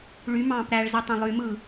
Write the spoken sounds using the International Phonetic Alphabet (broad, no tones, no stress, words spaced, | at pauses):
ɭy mɑ̃ːpɾæɭzi tˤæ̃lˠymɯː